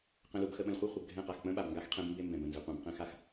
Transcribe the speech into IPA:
q ə̃˨ l u˨ b x ə˨ ɓ ə̃˨ l χʷ a˦ χʷ ə˨ b ɡʱ ɛ̃˦˨ q a˨ x k͡p ə̃˦ ɓ a˨ b ŋ ɡ a˦ x qʰ ɛ̃˦ b m b e˦ m b ɛ̃˨ b ə̃˨ n z ɪ˨ qʷ ɛ̃˨ b q ɛ̃˦ x a˦ x

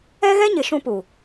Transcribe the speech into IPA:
ɛ˦ ɣ ɛ˦ ɲ ɪ˨ ʃ ũ˦ p u˨

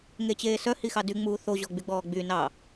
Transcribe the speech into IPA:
ŋ e t͡ɕ eː s œ h i x ɑ d y ŋ͡m uː θ o ʑ ɔ ɡ͡b y ɡ͡b ɔː ɡ͡b y n ɑ

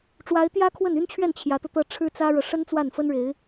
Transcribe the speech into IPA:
ʈ͡ʂ w a˧˥ ɪ̯ t̪ j ä˥ kʰ w ə˥˩ n y˥ n t͡ɕʰ ɥ ɛ˥˩ n t͡ɕʰ j ä˧˥ t̪ ɤ˧ t̪ ɤ˥˩ ʈ͡ʂʰ ɻ̩˥ t͡s ä˥ ɻ ɤ˨ ʂ ə˥ n t͡s w a˥˩ n f ə˥ n ɻ e˧˥ ɪ̯

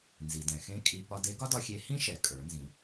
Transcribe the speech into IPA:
n z i˩ d ɛ̃˩ x ẽ˥ kʼ i˧ p ɒ˧ d e˧˥ ɡ ɒ˥ d ɒ˧ xʲ e˧˥ h ĩ˥ ʃ ɛ˩˧ kʼ ə˞˩˧ n z ĩ˩˧

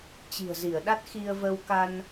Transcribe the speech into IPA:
t͡ɕ i̤˨˩ ə̯ z i˧˩ ə̯ ɗ a˦˥ t̚ x i˧ ə̯ v ə˧ w k a˧ n

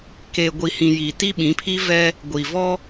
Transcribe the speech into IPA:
k eː˨ ɡʷ i˨ h ĩ˨ j i˨ t i˦ ɓ ĩ˨˦ pʰ i˦ v ɛ˦ | ɡʷ i˨ v ɔ˦

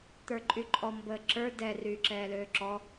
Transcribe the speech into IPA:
t̪ ə˞ ǃʼ y ǃʼ ɔ m b əː ǁ ə˞ d ɛ r yː ǁ ɛː l øː ǁ ɔ

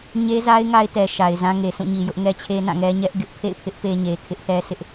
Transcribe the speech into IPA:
ɲ e˦ z a˦ ɪ̯ ŋ a˦ ɪ̯ t ɛ˨ ʃ a˨ ɪ̯ z ã˦ ŋ e˨ sʰ ũ˦˨ ɲ i˨ j ʊ˦ ʔ ŋ ɛ˦ t͡ɕʰ e˦ n ã˦˨ ŋ ɛ˦ ɲ ɛ˦ ʔ ɡ ɪ˦ ʔ pʰ ḛ˦˨ ɪ̯ pʰ ɪ˦ ʔ p e˦ ɲ e˨ kʰ ɪ˦ ʔ θ ɛ˦ sʰ ɪ˦ ʔ

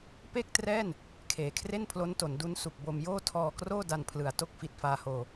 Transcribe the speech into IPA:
p e˥˩ k̚ t r ɛː˥˩ n | kʰ eː˨˩ kʰ r e˥˩ n pʰ l o˦˥ n t o˩˦ n d u˦˥ n s u˨˩ k̚ b o˧ m j oː˥˩ tʰ ɔː˧ k r oː˥˩ d a˧ n pʰ l ɯ˨˩ a̯ t o˥˩ k̚ f i˨˩ t̚ f aː˧ h oː˧

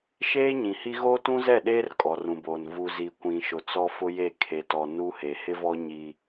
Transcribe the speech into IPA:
ʃ eː˦ ɲ ĩ˨ h i˦ ɣ oː˦ t ũ˦ z ɛ˦˨ ɗ eː˦ r kʼ ɔ˨ r ũ˨ b oː˨ n v u˨ z i˨ kʷ ĩ˨ ʃ ʊ˨ t͡s ɔ˦ f ʊ˦ j e˦˨ kʰ e˨ t ɔ˨ n u˦ h e˨ h ɪ˦ v ɔ˦ ɲ i˦

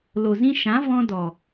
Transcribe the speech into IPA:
l o˨ z ĩ˧ ʃ ã˨˦ v ɔ̃˦ d ɔ˨

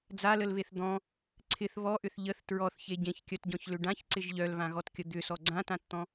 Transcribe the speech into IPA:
d͡z a l ə l β e θ d̪ ɔ̃ | ǀʰ ɪ θ β ɔ ʔ ʏ θ ʎ ə θ t ɹ ɔ θ ç e ɟ ẽ ç kʲ œ t ɟ ɔ̃ ç l ʏ ɖ ã ç ǀ ɪ ʒ ʎ œ l β ã ɣ ɔ t kʲ ə d̪ ʏ s ɔ ɡ͡ǀ ã t ã t t̪ ɔ̃

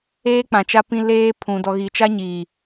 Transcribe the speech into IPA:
eː˦ k͡p ã˨ t͡ʃ a˦ p ĩ˦ l eː˦ pʰ ũ˨ d ɔ˨ ɣ i˨ t͡ʃ a˦ ɲ iː˨

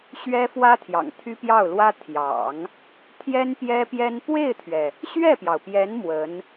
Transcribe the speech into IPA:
ɕ ɥ ɛ˥ f w ä˥ t̪ʰ j ɑ̰˨˩ ŋ t̪ʰ y˥ p j ɑ˥˩ ʊ̯ l w ä˥ t̪ʰ j ɑ̰˨˩˦ ŋ | t̪ʰ j ɛ˥ n p j ɛ˥ p j ɛ˥ n p w e˥˩ ɪ̯ t̪ʰ ɥ ɛ˩ | ɕ ɥ ɛ˥˩ p j ɑ˩ ʊ̯ p j ɛ˧˥ n m w ə˧˥ n

